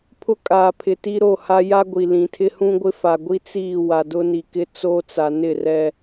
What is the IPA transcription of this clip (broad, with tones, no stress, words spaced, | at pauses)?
pʰʊ˦kʼaː˨pʰɪ˨ ti˦ɾo˦˨ha˦ ja˦ɡʷi˨ lĩ˨tʰɪ˦ hũ˦ɡʷɪ˦fa˨ɡʷi˦ t͡siː˦˨ wa˨dʊ˦ni˨kɪ˦ t͡soː˦t͡sa˨nɪ˦˨ rɛ˦